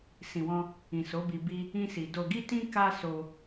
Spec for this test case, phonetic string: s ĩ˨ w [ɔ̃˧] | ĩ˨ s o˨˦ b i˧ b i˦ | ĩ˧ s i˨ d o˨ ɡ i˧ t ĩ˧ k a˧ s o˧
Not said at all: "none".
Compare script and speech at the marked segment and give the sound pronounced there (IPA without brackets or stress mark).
ɔ̃˧